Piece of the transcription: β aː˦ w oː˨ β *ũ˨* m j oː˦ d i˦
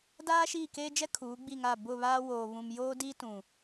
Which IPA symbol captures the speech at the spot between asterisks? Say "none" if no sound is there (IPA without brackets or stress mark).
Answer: ũ˨